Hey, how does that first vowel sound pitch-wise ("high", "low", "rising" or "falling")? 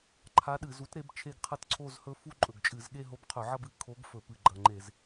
rising